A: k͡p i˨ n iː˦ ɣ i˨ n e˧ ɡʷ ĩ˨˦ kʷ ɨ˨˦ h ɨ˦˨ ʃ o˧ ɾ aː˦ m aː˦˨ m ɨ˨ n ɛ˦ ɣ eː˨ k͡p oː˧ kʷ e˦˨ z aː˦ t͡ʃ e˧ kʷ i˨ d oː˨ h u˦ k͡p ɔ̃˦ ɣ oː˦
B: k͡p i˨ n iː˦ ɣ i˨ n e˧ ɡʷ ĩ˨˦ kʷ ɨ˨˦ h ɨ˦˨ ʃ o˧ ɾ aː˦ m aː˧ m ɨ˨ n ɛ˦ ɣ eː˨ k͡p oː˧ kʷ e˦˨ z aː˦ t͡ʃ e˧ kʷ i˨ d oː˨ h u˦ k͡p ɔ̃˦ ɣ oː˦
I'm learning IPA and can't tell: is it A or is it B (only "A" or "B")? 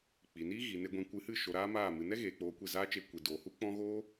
A